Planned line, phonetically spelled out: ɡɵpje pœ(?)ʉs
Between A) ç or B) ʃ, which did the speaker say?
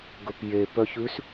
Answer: A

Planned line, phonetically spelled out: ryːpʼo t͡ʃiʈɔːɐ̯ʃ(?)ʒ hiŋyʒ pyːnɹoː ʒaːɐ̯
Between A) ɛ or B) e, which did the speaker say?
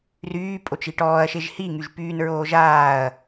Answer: B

